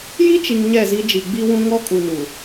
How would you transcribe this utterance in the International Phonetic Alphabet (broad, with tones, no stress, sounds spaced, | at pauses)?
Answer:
j i˦ t͡ʃ i˨ ŋ ɲ ɛ˦˨ z i˦ d͡ʒ i˨ ɡ͡b i˦ w ũ˦ ŋ ɔ˦ kʼ u˨ n u˨